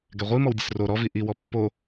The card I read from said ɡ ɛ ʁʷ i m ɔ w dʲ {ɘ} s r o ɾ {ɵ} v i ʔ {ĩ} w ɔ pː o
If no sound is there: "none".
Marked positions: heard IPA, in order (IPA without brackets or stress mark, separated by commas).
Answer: ɘ, ɔ, i